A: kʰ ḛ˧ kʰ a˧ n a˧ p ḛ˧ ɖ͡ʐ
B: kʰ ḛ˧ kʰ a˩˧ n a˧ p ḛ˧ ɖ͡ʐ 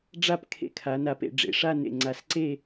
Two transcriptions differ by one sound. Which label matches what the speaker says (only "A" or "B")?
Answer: B